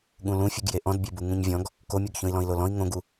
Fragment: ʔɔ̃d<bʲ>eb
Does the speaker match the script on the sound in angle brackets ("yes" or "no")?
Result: yes